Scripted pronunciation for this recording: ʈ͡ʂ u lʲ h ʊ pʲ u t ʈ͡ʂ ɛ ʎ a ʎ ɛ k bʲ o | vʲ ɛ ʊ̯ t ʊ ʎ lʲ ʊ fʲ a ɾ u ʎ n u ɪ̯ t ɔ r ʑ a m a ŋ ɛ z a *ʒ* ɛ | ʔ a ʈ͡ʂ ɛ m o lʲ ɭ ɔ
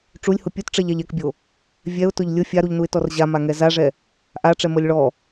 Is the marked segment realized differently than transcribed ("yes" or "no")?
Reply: yes